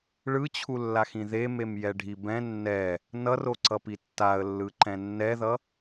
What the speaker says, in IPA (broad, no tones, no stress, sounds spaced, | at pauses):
ɭ ɯ t͡ɕʰ u lː a x ĩ ð e m e m j ɛ ɖʱ i b ɛ̃ nː ɛ | n ʌ r o ǀ ʌ p i tː a ə̯ lː ɯ ǃ ɛ̃ nː ɛ ð ʌ